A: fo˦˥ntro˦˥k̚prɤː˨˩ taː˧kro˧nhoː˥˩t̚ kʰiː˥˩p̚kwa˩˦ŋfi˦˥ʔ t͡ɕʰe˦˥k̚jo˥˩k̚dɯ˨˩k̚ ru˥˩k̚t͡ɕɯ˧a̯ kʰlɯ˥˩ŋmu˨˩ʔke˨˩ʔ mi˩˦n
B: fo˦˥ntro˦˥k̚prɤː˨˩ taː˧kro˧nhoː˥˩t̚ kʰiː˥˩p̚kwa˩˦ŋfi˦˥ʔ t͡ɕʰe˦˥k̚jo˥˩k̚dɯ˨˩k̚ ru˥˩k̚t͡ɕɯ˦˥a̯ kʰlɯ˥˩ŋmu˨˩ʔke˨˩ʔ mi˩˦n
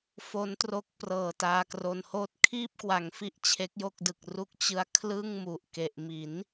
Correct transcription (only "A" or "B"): B